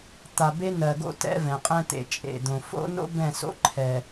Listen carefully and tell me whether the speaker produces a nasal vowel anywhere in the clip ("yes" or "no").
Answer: yes